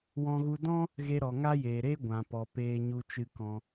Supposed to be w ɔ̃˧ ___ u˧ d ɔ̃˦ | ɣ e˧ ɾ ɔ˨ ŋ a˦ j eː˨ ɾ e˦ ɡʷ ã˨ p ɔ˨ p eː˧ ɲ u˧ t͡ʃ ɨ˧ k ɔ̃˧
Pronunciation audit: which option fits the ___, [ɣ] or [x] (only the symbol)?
ɣ